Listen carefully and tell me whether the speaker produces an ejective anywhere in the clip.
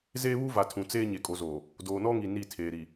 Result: yes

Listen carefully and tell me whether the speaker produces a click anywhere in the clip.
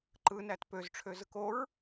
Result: yes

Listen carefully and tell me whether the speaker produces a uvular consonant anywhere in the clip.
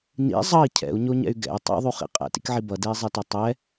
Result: yes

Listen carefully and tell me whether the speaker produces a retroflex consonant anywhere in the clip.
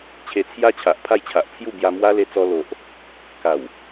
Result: no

